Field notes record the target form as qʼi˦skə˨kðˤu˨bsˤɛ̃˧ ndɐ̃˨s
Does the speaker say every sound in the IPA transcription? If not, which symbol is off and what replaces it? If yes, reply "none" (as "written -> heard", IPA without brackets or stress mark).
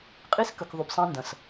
none